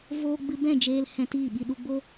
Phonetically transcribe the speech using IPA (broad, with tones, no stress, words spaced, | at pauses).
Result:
voː˧ɡ͡bɨ˧ bɛ̃˦˨d͡ʒeː˧lhɛ̃˧ tiː˦˨ɓi˧ɗu˧ɡ͡bo˦